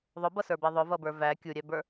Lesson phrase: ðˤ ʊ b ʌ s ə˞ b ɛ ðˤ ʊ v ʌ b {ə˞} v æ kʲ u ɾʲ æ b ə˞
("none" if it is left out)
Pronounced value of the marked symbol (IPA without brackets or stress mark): ə˞